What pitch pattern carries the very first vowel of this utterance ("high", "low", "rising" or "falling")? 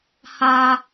high